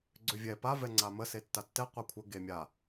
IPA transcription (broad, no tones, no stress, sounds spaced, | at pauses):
ɡ͡ǀ ø vʲ ɛ p a v ɛ ŋ͡ǀ a m ə s e tː a tː ɛ qʷ a kʷʰ ə ɡ e mʲ a